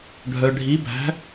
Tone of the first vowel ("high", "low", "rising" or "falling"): low